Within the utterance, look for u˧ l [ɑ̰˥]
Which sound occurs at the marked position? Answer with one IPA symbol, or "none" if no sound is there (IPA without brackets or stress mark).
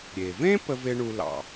ɑ̰˩